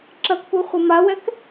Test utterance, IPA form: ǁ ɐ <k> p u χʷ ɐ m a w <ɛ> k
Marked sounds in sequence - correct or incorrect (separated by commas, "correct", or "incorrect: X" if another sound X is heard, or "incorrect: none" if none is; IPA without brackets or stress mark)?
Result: correct, correct